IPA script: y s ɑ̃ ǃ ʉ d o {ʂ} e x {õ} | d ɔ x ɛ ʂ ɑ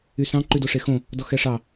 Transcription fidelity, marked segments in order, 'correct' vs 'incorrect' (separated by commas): correct, correct